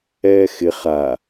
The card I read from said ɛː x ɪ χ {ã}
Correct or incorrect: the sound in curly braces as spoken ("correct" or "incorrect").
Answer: incorrect